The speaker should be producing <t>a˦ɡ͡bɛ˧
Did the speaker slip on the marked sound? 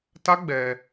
no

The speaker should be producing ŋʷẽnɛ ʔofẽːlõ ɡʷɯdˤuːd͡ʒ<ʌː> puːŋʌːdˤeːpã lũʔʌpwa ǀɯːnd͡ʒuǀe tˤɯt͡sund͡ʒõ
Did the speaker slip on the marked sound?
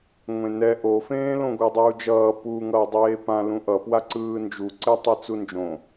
no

